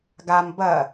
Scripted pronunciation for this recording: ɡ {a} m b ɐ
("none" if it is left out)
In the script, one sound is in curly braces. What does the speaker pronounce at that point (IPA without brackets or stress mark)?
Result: a